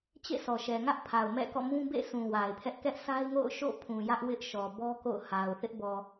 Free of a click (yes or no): yes